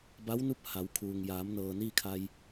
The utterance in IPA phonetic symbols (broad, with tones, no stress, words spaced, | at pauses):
ba˧˥wnu˧˥p̚ ha˩˧wkʰuː˩ŋ jaː˩˧mnɤː˩ niː˥˨kʰa˧j